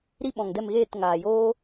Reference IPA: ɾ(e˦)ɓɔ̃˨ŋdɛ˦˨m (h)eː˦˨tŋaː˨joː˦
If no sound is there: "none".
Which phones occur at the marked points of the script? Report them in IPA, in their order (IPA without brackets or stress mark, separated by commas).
i˦, ɣ